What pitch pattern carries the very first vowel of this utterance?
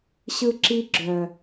high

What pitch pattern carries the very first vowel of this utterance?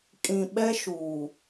low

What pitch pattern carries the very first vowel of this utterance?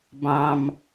low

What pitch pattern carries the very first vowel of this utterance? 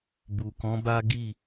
low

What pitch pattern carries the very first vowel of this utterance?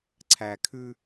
low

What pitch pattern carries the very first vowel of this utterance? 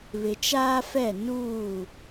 low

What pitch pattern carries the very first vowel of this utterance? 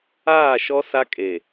falling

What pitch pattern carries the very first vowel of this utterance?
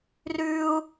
high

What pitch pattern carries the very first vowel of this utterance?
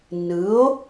rising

